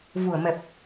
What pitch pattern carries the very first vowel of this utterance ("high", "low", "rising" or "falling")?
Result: low